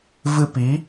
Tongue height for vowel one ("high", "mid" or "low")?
high